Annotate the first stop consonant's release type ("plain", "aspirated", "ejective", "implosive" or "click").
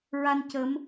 plain